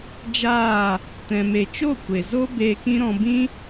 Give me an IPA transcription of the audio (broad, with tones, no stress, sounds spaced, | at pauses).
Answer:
d͡ʒ aː˦˨ | t ɛ̃˧ m e˧ t͡ʃ o˦˨ kʷ e˨ z o˦ b eː˧ k ĩ˦ ɾ ɔ̃˧ b ĩ˦